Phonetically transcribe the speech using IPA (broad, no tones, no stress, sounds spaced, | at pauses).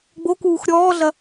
ɡ͡b o k uː x ɾʲ ɔː ɮ ɐ